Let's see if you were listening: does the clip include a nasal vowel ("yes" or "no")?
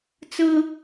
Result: no